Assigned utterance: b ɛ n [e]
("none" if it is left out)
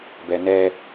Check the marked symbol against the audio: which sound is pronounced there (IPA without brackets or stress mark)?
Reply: ɛ